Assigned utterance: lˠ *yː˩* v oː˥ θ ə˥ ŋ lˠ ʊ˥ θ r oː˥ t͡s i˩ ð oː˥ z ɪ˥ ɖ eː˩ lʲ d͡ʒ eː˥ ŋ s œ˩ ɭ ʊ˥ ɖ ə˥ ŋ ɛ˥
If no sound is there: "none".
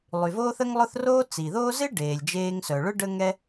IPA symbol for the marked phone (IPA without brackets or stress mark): y˩